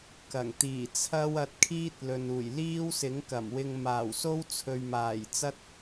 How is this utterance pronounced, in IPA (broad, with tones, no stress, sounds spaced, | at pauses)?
k ɐ˨˩ ŋ t̪ iː˨˩ t͡sʰ ɐ˥ w ɐ˧ t̚ kʰ iː˥ t̚ l ɵ˨ n uː˨˩ j l iː˥ w s ɪ˨˥ ŋ k ɐ˨˩ m w ɪ˧ ŋ m aː˨˩ w s o˥ w t͡sʰ ɵ˨ ɥ m aː˨˩ j t͡s ɐ˥ t̚